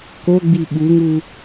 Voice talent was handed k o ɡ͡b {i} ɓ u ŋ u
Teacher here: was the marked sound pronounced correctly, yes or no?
yes